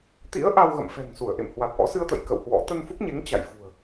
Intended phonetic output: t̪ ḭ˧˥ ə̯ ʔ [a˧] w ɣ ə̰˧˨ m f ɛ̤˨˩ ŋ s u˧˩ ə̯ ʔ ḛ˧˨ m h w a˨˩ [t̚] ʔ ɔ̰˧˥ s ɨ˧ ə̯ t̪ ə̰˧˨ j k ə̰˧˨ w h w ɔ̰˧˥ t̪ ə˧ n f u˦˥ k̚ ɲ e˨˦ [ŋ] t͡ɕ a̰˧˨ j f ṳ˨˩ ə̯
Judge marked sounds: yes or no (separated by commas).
yes, yes, yes